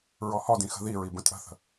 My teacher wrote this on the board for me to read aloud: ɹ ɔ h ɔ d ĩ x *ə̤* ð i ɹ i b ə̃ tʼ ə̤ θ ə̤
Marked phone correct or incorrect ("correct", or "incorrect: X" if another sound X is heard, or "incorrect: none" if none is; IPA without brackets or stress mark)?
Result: correct